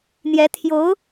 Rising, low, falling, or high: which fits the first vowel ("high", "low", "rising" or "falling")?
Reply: rising